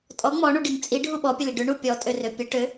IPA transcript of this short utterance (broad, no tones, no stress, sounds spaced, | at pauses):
tʼ ɔ ŋ͡m ɔ ɳ u ɖ i ŋ t͡sʼ i ɖʱ u ɓ ɔ pʲ ə l i ɖ ʏ ɳ u pʲ ɔ tʼ ø r ø pʲ ə ʈ ø